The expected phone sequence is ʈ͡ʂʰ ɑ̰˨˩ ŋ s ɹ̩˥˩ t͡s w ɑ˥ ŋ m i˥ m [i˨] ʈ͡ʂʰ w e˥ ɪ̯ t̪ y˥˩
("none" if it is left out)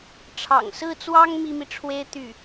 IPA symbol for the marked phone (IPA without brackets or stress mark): i˨